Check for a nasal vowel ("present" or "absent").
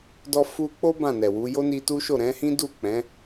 present